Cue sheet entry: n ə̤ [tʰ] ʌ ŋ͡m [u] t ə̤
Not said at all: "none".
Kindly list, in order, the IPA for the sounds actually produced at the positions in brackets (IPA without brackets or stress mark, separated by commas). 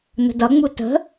d, u